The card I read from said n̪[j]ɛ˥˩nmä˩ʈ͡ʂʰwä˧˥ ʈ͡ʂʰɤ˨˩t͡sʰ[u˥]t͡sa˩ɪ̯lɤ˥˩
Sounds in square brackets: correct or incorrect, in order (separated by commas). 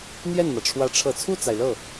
correct, incorrect